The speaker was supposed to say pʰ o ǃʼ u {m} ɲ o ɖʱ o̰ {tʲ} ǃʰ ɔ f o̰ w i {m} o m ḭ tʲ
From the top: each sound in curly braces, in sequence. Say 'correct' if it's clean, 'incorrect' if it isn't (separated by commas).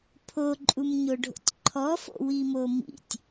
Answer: correct, correct, correct